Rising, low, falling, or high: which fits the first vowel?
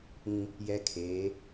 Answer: high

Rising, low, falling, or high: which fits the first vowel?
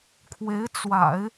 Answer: rising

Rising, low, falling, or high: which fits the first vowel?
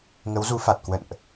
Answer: rising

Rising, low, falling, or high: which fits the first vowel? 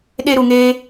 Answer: high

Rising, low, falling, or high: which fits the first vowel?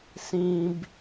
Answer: high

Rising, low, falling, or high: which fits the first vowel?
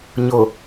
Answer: low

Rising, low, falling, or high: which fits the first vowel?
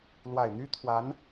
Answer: low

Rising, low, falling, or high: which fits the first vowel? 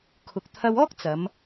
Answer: low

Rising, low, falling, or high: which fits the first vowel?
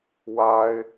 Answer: high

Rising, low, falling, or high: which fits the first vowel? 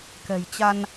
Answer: low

